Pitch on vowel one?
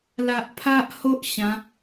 low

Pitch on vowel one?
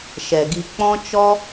low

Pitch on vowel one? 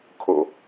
low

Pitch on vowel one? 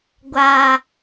low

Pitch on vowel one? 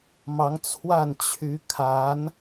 rising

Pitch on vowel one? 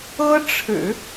high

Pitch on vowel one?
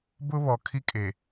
high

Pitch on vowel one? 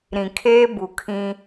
low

